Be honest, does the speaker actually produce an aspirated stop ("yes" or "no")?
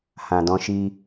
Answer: no